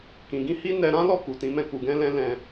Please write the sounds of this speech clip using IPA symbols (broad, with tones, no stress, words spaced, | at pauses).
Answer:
kĩ˨ɡĩ˧hi˦ nɛ˧ɾã˦lɔ˦˨ku˨ tĩ˨˦mɛ̃˧ ku˨ɡɛ̃˧ lɛ̃˦lɛ̃˧